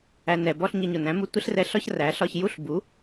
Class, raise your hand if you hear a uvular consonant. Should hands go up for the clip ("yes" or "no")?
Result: no